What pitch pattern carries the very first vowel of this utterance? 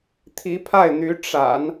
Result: rising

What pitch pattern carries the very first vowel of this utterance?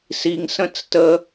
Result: low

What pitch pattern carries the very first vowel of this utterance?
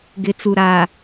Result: rising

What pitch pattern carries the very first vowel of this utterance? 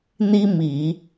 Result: high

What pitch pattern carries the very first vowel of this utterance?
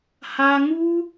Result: high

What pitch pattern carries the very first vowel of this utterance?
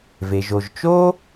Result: low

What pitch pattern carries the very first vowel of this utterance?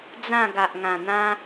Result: falling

